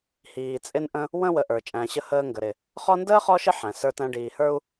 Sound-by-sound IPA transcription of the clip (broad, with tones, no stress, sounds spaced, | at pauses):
h iː˨ t͡sʼ ɪ˦ n ʔ ə̃˦ | w ə̃˥ w ə˨ ʔ ə˞˩ t͡ʃʼ æ̃˨ ɕ ə˦ h əː˦ ŋ ɡ ə˩ ɾ ɪ˩ | χ ɔ˦ n d əː˥ χ ɔ˦ ʃ ɪ˦ ħ æ̃˩ s ə˞˦ t æ̃˦ ɖ iː˨ h ə˞˥ u̯